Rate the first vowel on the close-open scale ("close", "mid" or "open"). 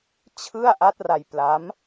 close